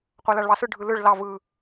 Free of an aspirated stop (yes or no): yes